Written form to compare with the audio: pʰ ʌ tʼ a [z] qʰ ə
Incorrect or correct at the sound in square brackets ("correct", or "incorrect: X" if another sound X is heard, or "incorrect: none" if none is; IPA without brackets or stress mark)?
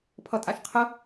incorrect: ʃ